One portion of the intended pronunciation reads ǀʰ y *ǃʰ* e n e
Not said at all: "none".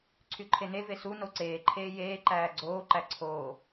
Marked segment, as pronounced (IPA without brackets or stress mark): ǃʰ